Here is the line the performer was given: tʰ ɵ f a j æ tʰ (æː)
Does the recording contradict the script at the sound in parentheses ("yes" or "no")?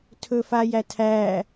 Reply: no